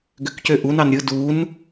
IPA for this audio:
ɡ ø k c ø ʔ u n ɑ n ɾʲ ɯ d u n

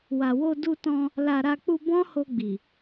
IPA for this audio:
w a˨ w o˧ d u˧ t ɔ̃˧ | l a˧ ɾ a˧ k͡p u˧ b ɔ̃˦ h o˧ ɡ͡b i˨

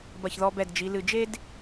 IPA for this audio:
b ɐ˧˩ ç ð ɔ˧ b ɛ˧˩ d d͡ʒ i˩˧ l ɨ˧˩ d͡ʒ e˥ d

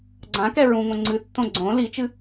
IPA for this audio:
ɡ͡ǀ ã k ɛ ɹ ũ ŋ õ ŋ͡ǀ ɨ tː õ ɡ͡ǀ õ l i t͡ʃ ɨ

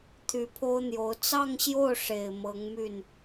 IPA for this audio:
t̪ʰ y˧˥ pʰ o˥ ʊ̯ n̪ j o˧˥ ʊ̯ t͡s ɑ˥˧ ŋ ɕ j o˥˩ ʊ̯ ʂ e˨˩ ɪ̯ m ɤ˧˥ ŋ m y˥˩ n

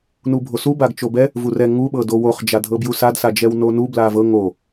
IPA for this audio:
n u bʱ o s u b a ɡ t͡ʃ o b ɛ | v u r ɛ ŋ u ɓ ɤ d o w o χ d͡ʒ a dʱ ɤ b j u s a d s a d͡ʒ ɛ w n o n u b l a v ɤ ŋ o

